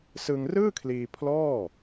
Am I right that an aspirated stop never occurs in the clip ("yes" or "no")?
no